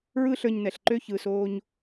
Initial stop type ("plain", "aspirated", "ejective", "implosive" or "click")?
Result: click